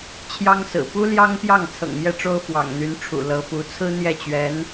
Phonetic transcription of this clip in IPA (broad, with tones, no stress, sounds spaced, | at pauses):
t͡ɕʰ j ɑ˥ ŋ s ɹ̩˨˩ p u˥ l j ɑ˥ ŋ p j ɑ˥˩ ŋ t͡sʰ ɤ̰˨˩ ŋ m j ɛ˥˩ ʈ͡ʂ o˥ ʊ̯ f w ɑ̰˨˩ ŋ n̪ y˧˥ n ʈ͡ʂʰ ṵ˨˩ l ɤ˧˥ f u˧˥ t͡sʰ ɹ̩˥ n̪ j ɛ˥˩ t͡ɕ ɥ ɛ˧˥ n